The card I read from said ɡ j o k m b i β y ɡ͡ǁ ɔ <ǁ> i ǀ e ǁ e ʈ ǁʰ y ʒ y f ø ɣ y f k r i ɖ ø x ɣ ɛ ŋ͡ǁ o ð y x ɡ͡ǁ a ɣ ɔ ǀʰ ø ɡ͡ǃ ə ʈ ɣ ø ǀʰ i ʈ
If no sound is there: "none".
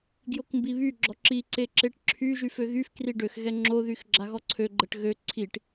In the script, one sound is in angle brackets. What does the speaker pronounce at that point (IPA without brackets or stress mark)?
ǁ